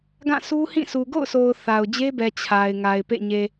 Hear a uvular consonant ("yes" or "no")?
no